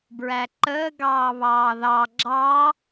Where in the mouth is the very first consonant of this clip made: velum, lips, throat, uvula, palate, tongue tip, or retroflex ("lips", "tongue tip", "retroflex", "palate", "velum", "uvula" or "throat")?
lips